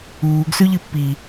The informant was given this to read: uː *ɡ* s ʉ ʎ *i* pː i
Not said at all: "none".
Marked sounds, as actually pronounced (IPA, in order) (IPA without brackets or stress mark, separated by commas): ɡ, ɨ